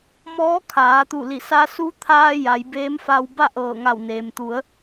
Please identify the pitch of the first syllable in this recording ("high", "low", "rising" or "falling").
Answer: rising